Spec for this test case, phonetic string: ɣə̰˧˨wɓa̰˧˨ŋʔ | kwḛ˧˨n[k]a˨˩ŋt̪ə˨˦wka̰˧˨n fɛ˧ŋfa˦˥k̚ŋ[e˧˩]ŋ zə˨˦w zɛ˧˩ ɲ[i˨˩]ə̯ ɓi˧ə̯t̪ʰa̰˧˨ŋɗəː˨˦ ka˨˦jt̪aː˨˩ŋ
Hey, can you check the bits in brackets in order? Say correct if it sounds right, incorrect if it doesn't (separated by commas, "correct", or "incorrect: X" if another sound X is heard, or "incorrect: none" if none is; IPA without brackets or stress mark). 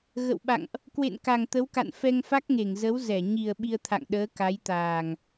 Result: correct, correct, correct